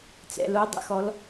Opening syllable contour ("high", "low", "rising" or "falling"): low